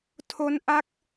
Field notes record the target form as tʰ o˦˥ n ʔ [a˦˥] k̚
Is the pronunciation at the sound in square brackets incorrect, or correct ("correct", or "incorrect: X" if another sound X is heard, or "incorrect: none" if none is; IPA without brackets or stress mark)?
correct